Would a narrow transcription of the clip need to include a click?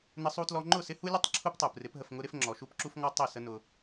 yes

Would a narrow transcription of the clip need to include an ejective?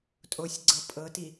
yes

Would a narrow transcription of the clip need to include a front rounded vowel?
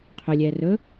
yes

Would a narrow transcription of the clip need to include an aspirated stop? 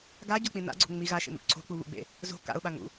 yes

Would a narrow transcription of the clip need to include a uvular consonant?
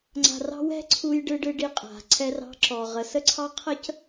yes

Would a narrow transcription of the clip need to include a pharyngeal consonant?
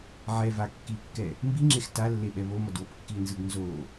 yes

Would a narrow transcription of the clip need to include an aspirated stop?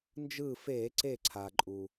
yes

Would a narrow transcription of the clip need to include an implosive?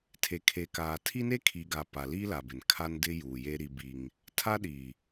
yes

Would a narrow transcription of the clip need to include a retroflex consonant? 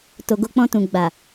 no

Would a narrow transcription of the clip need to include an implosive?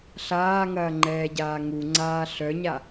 no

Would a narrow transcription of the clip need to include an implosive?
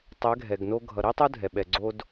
yes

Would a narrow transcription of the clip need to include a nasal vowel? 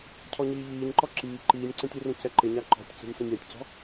yes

